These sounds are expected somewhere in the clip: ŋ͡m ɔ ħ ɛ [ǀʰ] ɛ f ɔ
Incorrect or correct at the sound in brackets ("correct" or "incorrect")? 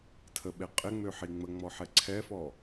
correct